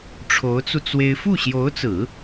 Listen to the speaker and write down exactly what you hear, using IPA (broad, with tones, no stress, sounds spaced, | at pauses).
ʈ͡ʂʰ o˧˥ ʊ̯ t͡s u˧ t͡s w e˥ ɪ̯ f u˥˩ ɕ j o˧˥ ʊ̯ t͡s ɹ̩˨˩˦